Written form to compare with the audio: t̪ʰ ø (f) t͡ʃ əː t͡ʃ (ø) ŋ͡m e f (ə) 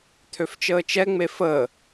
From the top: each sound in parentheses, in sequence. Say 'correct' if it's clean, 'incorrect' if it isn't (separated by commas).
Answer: correct, incorrect, correct